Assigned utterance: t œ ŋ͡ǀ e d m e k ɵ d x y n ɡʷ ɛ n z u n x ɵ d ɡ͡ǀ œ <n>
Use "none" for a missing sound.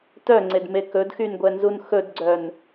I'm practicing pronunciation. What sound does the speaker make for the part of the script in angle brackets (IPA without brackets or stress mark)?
n